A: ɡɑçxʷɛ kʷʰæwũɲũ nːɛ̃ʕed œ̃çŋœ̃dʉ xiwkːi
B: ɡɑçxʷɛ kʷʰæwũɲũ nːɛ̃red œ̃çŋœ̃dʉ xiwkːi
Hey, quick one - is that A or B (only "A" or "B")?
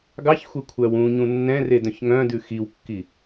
B